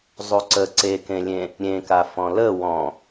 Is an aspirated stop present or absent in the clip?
absent